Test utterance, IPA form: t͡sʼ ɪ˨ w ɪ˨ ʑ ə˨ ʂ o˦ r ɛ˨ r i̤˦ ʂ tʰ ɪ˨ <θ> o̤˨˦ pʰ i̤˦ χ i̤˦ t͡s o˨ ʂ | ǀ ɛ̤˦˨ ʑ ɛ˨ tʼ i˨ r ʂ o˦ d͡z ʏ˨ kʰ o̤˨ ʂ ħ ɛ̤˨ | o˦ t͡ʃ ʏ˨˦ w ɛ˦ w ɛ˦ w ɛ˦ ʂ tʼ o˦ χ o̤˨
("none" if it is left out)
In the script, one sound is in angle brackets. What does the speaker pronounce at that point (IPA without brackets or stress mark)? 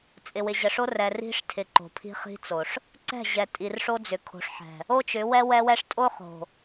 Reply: ǃ